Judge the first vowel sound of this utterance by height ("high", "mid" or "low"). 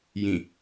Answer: high